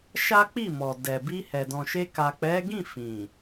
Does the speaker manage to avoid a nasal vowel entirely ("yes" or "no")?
no